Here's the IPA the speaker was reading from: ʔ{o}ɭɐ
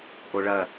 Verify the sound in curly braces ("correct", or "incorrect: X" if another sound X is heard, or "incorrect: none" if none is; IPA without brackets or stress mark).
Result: correct